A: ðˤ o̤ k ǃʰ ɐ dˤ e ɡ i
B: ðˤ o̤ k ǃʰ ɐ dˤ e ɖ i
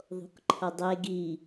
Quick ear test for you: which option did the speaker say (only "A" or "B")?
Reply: A